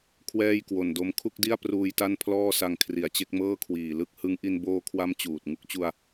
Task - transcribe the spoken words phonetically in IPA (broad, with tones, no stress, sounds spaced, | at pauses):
kʰ w ɛː˥˩ j k w o˨˩ n d o˧ m kʰ u˥˩ k̚ d i˥˩ a̯ p r uː˧ j t a˥˩ n pʰ l ɔː˥˩ s a˧ ŋ kʰ r i˩˦ a̯ t͡ɕ e˦˥ k̚ m ɤː˥˩ kʰ w iː˨˩ l ɯ˦˥ k̚ h ɯ˦˥ ŋ ʔ i˧ n b oː˧ kʰ w a˦˥ m t͡ɕ uː˨˩ t̚ ŋ u˦˥ k̚ t͡ɕ u˧ a̯